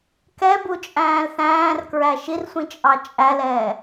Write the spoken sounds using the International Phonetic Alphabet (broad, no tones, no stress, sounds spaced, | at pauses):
k ɛ b u t͡ʃʼ æ̃ː l θ æ̃ː r k ɹ æ ʃ i r sʷ ĩ t͡ʃʼ ɑ t͡ʃʼ æ l ɛː